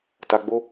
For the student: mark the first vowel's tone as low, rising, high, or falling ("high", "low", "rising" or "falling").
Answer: low